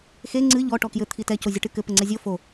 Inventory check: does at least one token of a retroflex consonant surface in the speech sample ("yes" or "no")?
yes